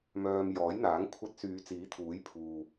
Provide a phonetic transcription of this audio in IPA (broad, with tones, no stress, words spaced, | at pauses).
mœː˧m jɔː˨˥jn̪aː˨˥ŋ kʷʰɐ˧t̚syː˨˧ t͡siː˨˥t̪ʰuː˨˥j pʰuː˨